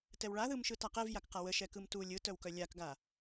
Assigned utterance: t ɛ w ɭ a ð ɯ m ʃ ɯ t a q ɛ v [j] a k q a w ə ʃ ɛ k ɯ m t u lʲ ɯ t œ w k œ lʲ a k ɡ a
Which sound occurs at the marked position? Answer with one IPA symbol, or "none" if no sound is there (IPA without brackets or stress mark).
j